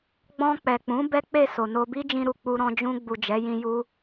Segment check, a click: absent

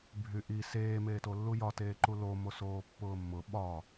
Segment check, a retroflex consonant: absent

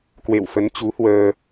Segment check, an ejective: absent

